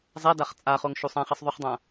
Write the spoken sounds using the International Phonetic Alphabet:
zˤ ɛ d a χ t͡sʼ a χ o ŋ ʃ u sˤ ã χ e sˤ ðˤ u χ dˤ ã

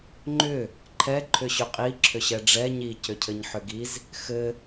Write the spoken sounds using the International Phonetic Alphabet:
ŋ͡ǃ ʏ | ǃʰ ɛ ǃʰ ʏ ɕ ʏ qʼ i ǁʰ ʏ ɕ ɛ ɖ͡ʐ ɛ ɲ i c ʏ cʰ ɘ ɲ ħ ʏ ɡ i z | x ɘ

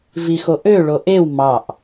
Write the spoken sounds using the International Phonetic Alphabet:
v i x o ʔ ø ɭ o ʔ e w m ɑ ʔ

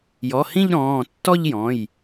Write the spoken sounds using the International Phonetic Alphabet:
j ɔ˩˧˩ h ĩ˥˧ ʎ ɾ ɔ̃ː˩˧˩ tː ɔ˥˧ ʎ j ɔ̃˩˧˩ j

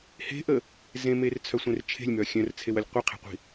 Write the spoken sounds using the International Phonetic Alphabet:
h e̤ ʔ ə | z ẽ m e r t͡sʰ œ sʷ ẽ r t͡ʃʰ e̤ lʲ m œ xʲ œ̃ r t͡sʰ e w ə lʲ qʷ ɘ qʰ e̤ qʷ i̤

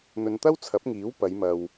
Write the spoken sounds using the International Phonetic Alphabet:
n̪ ɵ˨ n t̪ ɐ˥ w t͡sʰ ɐ˨˥ p̚ ŋ iː˨˥ w p ɐ˨˧ j m ɐ˨ w

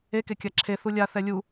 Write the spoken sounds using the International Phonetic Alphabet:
e k e kʲ a ǁʰ e θ u lʲ a θ ɛ lʲ u

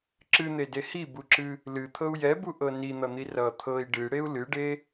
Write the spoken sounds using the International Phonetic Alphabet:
ǁ ɨ n̪ e d e h i b u ǁ ɨ | l ɨ t̪ʰ ɤ u̯ j ɛ b u ʔ ɤ n i n̪ ʌ n̪ i r ʌ t̪ʰ ɤ i̯ ɖ ɨ ɽ e u̯ l ɨ ɖ e

